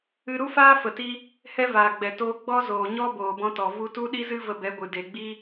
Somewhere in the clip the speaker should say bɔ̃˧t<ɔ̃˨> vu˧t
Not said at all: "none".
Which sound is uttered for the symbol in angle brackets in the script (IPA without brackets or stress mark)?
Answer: ɔ˨